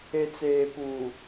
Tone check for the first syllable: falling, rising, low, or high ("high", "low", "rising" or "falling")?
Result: low